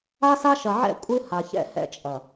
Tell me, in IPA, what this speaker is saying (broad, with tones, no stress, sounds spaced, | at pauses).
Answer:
a˦ s a˦ ʃ ɐ˨ ʕ ɛ̰˦ kʷʼ ɨ˦ h a˨ ç ɛ̰˦ h ɛ̰˦ t͡ʃʼ ɐ˨